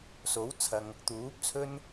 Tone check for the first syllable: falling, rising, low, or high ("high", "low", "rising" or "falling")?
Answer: rising